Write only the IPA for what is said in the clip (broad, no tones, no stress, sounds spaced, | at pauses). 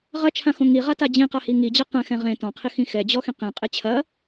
ʁ ɐ t͡ʃʰ ã x õ ŋ i ʁ a t a d͡ʑ ĩ q a h i ŋ i d͡ʑ a q ɛ̃ x ɛ̃ ʁ ẽ t ɔ̃ qʰ i x ĩ x ɛ d͡ʑ ɔ x ĩ q ĩ qʼ e t͡ɕʰ ɐ